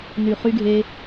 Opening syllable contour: low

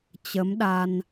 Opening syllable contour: rising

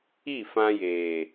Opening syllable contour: falling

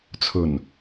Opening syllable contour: low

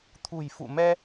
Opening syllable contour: low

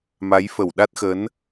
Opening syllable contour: rising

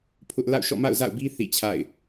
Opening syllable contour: high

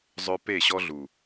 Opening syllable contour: high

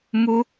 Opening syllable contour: high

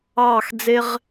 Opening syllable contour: falling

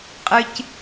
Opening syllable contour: high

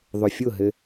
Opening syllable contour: low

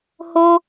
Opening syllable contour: high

